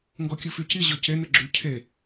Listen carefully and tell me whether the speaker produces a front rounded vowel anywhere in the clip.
yes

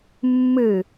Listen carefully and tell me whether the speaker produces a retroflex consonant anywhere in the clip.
no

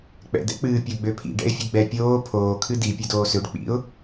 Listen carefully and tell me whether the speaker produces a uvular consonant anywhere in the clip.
no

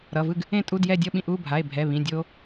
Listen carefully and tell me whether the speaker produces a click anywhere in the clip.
no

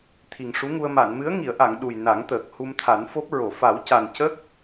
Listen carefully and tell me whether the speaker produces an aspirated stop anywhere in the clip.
yes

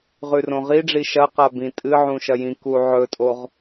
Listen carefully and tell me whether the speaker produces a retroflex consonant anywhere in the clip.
yes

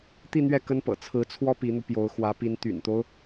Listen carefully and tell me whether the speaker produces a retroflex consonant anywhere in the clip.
no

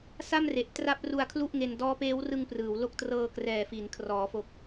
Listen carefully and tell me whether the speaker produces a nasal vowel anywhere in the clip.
no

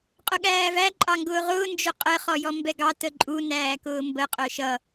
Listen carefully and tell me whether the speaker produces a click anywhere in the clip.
yes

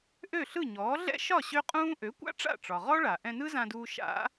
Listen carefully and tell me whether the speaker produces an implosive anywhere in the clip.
no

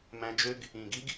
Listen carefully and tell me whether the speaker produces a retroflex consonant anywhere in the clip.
no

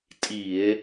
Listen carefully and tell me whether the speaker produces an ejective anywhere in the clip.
yes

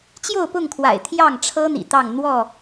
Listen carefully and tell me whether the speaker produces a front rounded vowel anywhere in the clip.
no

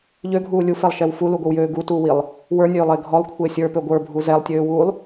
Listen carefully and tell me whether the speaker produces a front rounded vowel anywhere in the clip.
yes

